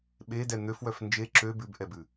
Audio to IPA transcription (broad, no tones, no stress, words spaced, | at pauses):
ɓedɛ n̪øfwœf nd͡ʒe ǁø bʉbʔɛbʉ